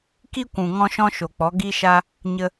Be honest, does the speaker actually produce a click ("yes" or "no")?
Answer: no